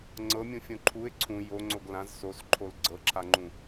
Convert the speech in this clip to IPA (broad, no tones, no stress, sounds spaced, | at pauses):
ŋ͡ǀ ɤ mʲ ũ fʲ õ ǃʰ u ɪ̯ ǀʰ ũ j o ŋ͡ǀ o ɡ l ã z s o s ǃʰ o l ɡ͡ǀ ɤ ǁʰ a ŋ͡ǃ ũ